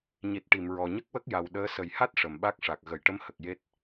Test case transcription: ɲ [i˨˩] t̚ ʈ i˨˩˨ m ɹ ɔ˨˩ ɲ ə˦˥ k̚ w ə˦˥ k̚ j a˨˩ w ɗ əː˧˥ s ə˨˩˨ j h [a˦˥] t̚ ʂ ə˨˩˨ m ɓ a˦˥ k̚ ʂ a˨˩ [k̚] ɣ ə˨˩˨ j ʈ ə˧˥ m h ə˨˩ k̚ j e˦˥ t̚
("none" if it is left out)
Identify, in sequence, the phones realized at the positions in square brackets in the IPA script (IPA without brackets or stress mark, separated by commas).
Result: i˨˩, a˦˥, k̚